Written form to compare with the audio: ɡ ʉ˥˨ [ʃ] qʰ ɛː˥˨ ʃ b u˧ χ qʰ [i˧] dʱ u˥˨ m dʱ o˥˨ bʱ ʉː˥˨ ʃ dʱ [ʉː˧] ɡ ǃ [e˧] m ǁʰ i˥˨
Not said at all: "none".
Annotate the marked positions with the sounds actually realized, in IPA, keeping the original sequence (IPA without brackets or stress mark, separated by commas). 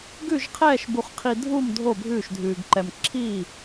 ʒ, i˧, ʉː˧, ɛ˧